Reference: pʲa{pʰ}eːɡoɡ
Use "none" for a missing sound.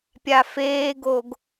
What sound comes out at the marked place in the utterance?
f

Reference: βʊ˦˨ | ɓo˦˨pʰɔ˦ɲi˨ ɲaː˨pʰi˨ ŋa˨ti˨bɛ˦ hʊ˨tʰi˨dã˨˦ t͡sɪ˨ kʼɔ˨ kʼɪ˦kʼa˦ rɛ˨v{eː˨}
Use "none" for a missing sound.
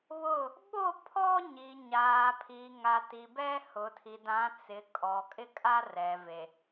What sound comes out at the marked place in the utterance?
e˨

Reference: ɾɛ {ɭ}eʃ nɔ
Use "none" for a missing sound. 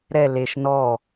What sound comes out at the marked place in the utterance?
l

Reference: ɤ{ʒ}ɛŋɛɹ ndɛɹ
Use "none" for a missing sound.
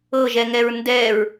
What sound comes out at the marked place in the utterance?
ʒ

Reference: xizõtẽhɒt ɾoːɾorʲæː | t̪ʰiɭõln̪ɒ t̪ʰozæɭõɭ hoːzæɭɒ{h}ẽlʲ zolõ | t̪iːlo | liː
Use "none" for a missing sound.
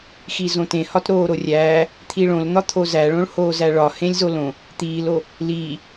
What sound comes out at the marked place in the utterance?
h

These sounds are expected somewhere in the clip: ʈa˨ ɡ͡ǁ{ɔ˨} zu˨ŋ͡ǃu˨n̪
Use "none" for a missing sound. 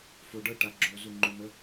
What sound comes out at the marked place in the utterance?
o˨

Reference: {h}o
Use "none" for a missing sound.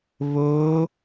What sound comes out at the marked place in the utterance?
β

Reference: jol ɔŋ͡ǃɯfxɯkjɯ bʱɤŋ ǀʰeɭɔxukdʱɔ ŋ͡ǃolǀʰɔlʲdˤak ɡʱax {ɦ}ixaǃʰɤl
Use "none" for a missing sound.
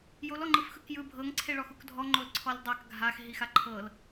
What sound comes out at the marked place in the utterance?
ɦ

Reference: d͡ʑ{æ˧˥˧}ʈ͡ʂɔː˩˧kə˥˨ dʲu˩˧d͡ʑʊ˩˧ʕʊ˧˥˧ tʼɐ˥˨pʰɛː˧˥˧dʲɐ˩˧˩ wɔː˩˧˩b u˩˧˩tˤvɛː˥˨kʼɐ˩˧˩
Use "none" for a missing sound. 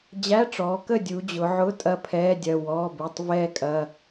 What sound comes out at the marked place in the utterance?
æ˧˥˧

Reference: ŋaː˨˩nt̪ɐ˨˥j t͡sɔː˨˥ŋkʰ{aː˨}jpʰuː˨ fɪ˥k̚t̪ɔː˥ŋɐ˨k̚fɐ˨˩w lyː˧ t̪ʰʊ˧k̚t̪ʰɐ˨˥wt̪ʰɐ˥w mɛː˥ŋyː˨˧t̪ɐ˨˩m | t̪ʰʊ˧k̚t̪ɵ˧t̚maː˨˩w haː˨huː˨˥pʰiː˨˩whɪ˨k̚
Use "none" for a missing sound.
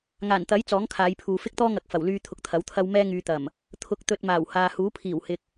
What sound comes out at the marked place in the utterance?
aː˨˧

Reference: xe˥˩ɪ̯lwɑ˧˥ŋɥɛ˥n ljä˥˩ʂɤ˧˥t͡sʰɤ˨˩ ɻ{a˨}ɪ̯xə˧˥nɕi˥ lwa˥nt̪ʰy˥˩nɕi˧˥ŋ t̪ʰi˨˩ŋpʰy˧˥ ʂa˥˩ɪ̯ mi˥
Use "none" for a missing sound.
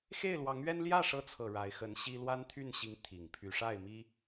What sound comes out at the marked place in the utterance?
a˧˥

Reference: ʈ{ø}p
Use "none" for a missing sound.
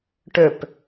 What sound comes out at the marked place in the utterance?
ø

